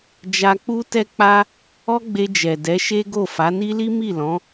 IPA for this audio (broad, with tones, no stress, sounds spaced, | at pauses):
d͡ʒ a˧ k͡p u˦ t ɛ˦ k͡p a˦ | ɔ˦ ɡ͡b e˧ d͡ʒ ɛ˨ d ɛ˨˦ ʃ e˦ ɡ o˦˨ f a˨˦ n i˦ l i˦ m i˦˨ l ɔ̃˨˦